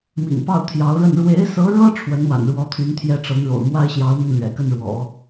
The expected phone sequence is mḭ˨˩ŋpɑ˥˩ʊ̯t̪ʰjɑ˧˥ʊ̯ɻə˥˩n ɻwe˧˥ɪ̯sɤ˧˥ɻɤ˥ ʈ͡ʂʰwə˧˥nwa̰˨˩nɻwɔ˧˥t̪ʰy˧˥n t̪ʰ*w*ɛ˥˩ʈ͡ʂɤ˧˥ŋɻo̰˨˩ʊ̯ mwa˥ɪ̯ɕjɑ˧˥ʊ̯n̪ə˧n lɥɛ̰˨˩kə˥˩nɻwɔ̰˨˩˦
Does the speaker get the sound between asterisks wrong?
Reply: yes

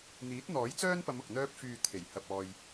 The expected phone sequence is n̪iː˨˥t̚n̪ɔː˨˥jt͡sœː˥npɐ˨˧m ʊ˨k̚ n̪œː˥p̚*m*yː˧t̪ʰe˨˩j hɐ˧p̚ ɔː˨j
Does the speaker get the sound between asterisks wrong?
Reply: yes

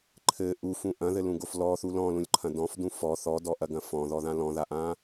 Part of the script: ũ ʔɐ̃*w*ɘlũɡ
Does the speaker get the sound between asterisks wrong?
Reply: yes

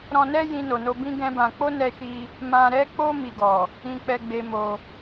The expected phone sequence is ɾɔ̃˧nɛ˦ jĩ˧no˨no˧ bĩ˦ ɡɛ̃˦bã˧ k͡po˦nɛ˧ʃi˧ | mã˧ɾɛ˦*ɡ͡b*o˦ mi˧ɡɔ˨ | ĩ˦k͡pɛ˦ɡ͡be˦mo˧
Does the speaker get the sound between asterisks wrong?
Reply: yes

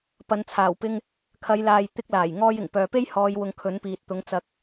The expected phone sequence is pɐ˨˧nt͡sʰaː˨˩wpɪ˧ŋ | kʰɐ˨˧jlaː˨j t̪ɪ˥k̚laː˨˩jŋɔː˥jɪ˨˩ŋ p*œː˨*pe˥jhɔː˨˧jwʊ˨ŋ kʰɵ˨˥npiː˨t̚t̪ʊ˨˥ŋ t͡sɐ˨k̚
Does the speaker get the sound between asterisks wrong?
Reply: no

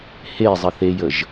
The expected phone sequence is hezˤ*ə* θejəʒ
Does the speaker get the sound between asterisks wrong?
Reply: no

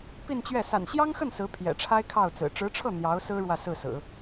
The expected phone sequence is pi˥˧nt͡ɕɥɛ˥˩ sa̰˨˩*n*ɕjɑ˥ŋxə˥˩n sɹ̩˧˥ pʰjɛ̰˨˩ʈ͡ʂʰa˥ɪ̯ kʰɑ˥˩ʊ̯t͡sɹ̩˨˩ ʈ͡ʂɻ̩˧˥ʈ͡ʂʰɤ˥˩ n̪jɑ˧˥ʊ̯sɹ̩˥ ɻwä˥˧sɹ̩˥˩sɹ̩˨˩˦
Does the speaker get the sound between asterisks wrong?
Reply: no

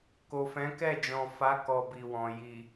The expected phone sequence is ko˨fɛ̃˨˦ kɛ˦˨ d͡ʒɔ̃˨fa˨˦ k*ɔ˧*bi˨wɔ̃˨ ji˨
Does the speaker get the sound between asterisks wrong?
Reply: no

